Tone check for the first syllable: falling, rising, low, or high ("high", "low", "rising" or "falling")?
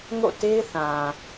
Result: falling